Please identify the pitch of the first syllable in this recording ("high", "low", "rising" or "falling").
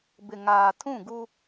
low